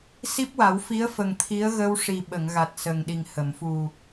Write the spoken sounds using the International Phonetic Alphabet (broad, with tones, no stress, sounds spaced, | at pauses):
s i˦˥ p̚ w a˨˩˦ w f i˧˥ ə̯ f ə˨˩ ŋ t̪ʰ i˧˥ ə̯ ɣ ə˧ w ʂ i˨˩ ɓ ə˨˩˨ ŋ ɣ a˨˩ t̚ s ə˨˩ ŋ ɗ i˨˩ ŋ h ə˨˩˨ m f u˨˩